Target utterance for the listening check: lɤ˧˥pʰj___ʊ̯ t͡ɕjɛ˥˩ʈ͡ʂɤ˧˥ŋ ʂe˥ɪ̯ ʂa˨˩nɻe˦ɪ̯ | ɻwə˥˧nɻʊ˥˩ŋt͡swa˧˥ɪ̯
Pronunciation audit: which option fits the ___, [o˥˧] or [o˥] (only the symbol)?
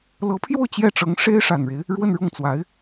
o˥˧